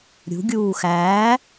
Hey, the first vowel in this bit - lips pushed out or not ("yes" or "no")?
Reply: yes